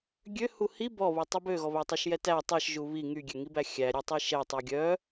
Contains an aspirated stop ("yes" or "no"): no